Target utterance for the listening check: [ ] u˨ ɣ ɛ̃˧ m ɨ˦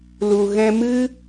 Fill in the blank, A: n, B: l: B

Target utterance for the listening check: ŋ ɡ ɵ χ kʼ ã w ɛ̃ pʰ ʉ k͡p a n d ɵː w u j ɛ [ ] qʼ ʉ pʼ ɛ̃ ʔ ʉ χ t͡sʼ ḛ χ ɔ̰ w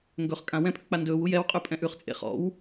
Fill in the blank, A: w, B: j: A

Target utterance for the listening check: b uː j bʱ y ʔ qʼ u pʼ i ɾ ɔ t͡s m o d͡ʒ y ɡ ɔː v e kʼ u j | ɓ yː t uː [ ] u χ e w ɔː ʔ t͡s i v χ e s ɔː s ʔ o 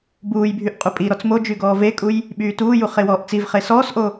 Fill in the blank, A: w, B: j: B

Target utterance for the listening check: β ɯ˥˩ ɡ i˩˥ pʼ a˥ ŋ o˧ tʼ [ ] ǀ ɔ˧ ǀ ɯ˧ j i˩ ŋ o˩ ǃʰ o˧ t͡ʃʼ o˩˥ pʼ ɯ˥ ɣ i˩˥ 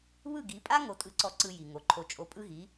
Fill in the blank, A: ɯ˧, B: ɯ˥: A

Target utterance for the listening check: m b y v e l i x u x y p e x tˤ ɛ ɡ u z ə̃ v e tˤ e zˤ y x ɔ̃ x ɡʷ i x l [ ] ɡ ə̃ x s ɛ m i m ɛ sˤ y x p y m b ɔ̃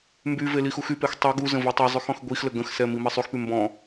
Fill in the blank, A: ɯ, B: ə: B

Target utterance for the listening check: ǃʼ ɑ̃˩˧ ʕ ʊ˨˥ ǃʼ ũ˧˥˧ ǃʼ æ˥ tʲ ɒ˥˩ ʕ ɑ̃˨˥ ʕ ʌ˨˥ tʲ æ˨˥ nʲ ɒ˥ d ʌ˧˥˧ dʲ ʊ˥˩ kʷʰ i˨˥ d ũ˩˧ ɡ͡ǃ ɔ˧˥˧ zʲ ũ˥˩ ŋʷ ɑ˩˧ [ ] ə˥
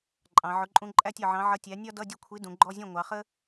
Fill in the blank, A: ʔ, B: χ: B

